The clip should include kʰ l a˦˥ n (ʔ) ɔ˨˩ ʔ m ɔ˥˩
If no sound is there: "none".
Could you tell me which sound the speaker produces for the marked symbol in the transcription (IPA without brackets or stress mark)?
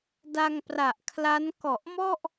k